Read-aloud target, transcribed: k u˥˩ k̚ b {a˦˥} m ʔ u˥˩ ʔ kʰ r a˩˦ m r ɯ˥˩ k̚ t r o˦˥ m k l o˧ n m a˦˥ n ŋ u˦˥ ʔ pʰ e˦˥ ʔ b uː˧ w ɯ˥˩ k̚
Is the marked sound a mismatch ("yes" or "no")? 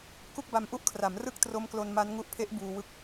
yes